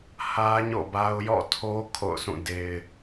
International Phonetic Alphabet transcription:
h ä˦ ɲ o̰˦˨ b a˦ ʊ̯ j ɔ̰˦˨ tʰ o˦ kʰ o̰˦˨ ʊ̯ s ũ˦˨ d e˦ ɪ̯

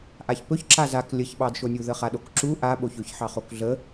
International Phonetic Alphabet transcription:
ʔ a ç p ɵ ç ǁ a z a k lʲ ə ç ɓ ɑ d ʃ o nʲ u ð ə χ a ɗ o k ǁ u ʔ a ɓ o ç ɵ ç ħ ɑ χ o k ɮ ə

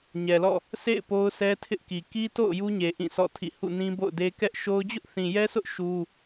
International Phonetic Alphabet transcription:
ɲ ɛ˨ l ɔ̰˦˨ | sʰ ḛ˦˨ ɪ̯ p o˦ ʊ̯ sʰ ɛ˦ tʰ ɪ˦ ʔ k i˨ k i˦ t o̰˦˨ ʊ̯ j u˦ ɲ e˨ ʔ ĩ˦˨ s ɔ̰˦˨ tʰ ḭ˦˨ h ṵ˦˨ n ĩ˦ b o̰˦˨ ʊ̯ d e˦ k ɛ˦ ʔ ʃ o˦ ʊ̯ d͡ʑ ʊ˦ ʔ θ ĩ˨ j ɛ˦ s ʊ˦ ʔ ʃ u˦

